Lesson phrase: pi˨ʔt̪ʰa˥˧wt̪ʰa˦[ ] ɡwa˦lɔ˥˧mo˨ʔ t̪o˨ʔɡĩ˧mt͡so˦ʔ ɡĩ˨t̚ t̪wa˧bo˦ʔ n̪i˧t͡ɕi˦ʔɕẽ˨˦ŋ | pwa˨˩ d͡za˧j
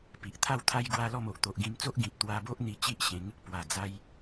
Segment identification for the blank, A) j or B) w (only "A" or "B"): A